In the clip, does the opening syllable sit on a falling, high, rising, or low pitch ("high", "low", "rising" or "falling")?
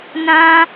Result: high